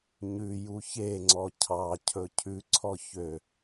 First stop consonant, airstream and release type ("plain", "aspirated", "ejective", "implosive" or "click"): click